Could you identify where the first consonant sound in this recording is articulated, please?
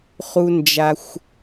uvular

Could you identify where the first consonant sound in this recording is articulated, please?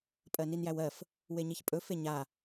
labial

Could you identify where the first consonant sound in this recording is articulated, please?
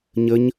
palatal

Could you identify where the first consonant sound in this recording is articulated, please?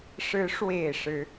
retroflex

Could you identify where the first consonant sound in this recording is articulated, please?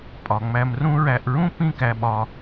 labial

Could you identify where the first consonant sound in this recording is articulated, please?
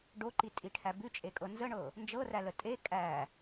retroflex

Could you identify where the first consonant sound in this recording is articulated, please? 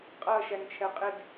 uvular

